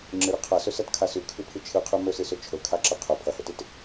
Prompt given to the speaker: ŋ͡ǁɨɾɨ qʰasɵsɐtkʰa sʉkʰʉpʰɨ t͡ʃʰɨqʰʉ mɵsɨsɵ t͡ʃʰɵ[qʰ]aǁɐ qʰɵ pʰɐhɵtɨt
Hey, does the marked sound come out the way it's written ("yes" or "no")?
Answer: no